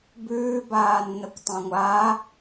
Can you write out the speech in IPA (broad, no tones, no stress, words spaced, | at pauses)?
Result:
bʉːbaːnːəkʷ tˤãŋʷaː